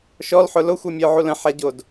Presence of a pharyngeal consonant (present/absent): present